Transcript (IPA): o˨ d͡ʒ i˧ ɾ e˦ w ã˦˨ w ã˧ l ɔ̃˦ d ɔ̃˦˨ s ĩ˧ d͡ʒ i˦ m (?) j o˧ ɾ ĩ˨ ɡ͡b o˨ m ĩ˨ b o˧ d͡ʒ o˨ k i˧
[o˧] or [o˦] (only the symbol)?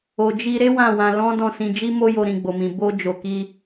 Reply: o˦